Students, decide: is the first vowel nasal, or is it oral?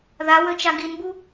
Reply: oral